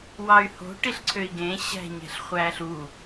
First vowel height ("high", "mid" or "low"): low